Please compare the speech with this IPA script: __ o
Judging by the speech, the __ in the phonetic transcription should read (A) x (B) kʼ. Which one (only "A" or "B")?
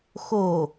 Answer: A